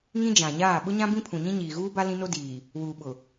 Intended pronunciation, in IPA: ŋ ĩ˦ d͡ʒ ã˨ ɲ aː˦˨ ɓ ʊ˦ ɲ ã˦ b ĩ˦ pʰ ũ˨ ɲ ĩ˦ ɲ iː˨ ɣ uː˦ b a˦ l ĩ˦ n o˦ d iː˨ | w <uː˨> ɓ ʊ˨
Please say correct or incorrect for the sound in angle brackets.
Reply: correct